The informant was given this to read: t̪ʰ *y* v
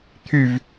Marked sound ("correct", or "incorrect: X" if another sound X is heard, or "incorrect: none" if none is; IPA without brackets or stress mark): correct